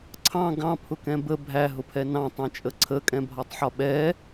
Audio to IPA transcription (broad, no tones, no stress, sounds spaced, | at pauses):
ǀʰ ɑ̃ ɡ ɑ̃ pʰ ʊ k ɛ̃ b ə bʱ æ ɦ ʊ pʰ ɛ n ɑ̃ tˤ ɛ̃ t͡ʃʼ ə ǀʰ ə kʼ ɛ̃ bʱ ɒ tˤ ħ ɒ ɓ ɛ